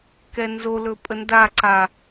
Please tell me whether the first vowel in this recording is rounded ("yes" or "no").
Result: no